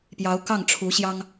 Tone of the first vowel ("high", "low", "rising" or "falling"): rising